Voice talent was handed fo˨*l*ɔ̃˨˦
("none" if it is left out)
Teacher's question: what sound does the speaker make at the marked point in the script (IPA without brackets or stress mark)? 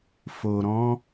ɾ